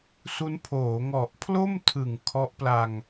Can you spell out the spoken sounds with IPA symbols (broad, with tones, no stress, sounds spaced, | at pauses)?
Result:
s u˦˥ n pʰ oː˩˦ ŋ ɔ˨˩ ʔ pʰ l o˥˩ m tʰ ɯ˨˩ ŋ kʰ ɔ˦˥ ʔ p l a˧ ŋ